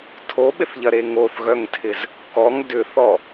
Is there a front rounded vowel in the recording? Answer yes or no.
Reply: yes